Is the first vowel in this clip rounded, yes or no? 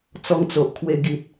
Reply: yes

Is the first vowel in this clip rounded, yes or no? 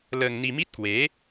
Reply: no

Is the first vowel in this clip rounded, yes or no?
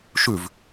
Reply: yes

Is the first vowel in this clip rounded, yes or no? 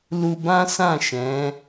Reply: yes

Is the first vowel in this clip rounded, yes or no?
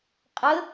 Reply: no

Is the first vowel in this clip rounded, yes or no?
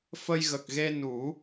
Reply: no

